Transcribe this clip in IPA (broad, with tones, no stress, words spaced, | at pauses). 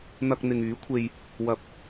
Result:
n̪ɐ˧k̚n̪ɪ˨ŋyː˨˥kʷʰe˧j | wɐ˨˥p̚